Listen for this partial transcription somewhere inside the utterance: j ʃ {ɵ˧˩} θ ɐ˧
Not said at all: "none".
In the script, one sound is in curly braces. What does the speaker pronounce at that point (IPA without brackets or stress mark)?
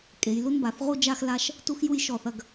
ɔ˧˩